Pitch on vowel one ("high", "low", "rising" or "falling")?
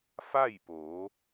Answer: falling